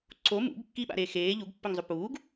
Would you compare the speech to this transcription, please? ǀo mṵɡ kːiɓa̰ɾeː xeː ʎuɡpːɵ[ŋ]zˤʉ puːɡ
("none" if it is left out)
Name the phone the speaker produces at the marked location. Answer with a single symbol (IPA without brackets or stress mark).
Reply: ŋ